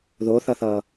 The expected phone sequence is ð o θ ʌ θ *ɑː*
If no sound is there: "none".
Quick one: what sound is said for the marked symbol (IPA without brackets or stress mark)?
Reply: ʌː